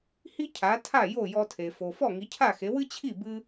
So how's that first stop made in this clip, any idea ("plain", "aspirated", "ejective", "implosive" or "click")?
aspirated